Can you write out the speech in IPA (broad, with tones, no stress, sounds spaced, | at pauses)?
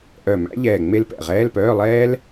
ʔ œ˧˩ m æ̰˦˥ ʎ ɛː˧˩ ŋ͡m e˦˥ l p ɛ̰˧˩ ʁ ɛː˧˥˧ l p œː˧˥˧ lˠ ɛː˦˥ l